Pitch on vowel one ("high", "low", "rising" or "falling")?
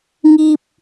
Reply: high